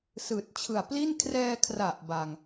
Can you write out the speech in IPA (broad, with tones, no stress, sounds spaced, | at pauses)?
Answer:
s ɯː˨˩ t̚ t͡ɕʰ ɯ˨˩ a̯ p l i˥˩ n kʰ r ɛː˧ kʰ r a˨˩ ʔ b a˧ ŋ